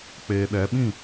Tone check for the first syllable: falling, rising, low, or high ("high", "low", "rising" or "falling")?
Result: low